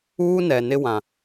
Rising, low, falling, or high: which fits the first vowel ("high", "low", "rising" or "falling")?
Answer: high